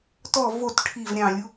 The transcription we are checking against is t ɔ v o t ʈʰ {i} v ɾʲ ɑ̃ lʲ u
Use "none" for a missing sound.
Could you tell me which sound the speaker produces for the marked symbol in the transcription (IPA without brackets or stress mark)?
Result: i